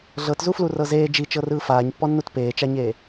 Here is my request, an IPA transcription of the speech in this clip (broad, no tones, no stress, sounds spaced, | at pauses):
ɮ ɤ t z u f l u r ɤ z eː d͡ʒ i t͡ʃ ɤ r ɯː f aː ɲ pː ɔ nː u t p eː t͡ʃ a ɲ eː